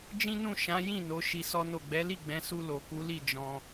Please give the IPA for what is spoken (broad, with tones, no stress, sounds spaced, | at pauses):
d͡ʒ ĩ˦ n ũ˦˨ ʃ ã˨˦ j ĩ˦˨ n o˨˦ ʃ i˧ s ɔ˦ n o˦˨ ɡ͡b ɛ˨˦ l i˦˨ ɡ͡b ɛ̃˨˦ s u˧ l o˨ k u˨˦ l i˦˨ d͡ʒ ɔ̃˧